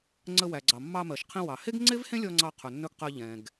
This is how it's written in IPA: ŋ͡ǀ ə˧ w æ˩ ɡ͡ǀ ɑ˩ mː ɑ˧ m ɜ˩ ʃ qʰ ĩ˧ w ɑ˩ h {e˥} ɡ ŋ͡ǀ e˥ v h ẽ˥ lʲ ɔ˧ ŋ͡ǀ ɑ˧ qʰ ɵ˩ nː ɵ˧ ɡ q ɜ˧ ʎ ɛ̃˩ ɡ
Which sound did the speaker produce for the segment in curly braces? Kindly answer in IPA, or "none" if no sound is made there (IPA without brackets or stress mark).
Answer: e˥